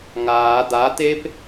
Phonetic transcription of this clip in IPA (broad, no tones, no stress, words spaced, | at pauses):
ŋaː d̪at̪ep